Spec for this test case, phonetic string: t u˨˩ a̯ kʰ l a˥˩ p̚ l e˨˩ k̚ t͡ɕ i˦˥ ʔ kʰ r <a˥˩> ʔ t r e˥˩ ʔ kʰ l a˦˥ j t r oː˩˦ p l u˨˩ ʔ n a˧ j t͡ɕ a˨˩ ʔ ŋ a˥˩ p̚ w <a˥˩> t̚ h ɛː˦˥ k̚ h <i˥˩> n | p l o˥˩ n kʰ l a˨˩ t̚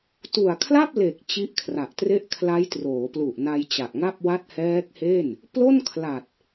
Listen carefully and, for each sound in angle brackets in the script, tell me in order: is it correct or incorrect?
incorrect, correct, incorrect

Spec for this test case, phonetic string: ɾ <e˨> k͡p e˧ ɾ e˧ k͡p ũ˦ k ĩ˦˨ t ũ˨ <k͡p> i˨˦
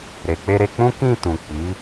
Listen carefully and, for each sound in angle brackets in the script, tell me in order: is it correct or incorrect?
correct, correct

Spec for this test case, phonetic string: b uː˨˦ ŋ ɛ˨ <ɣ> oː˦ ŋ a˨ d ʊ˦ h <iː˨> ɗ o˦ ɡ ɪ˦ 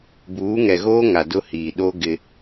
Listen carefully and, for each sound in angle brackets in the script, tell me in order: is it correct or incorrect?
correct, correct

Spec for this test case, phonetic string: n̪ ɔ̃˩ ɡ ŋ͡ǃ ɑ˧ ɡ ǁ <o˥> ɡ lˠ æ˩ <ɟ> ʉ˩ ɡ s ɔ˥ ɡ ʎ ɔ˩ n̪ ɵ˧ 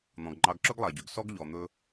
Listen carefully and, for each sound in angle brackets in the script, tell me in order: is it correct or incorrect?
incorrect, correct

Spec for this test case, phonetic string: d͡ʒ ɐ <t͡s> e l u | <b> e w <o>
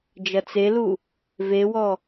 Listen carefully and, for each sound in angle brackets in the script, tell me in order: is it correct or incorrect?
correct, incorrect, incorrect

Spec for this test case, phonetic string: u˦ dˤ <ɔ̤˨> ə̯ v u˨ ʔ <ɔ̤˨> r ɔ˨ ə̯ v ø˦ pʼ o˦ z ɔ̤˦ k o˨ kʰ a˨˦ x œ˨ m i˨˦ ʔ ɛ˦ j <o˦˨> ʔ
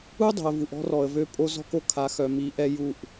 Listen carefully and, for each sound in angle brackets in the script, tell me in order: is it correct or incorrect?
incorrect, incorrect, incorrect

